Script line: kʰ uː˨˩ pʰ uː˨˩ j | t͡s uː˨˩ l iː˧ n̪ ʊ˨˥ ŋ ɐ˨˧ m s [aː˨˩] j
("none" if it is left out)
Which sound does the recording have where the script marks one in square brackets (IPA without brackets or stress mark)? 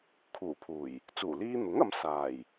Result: aː˨˩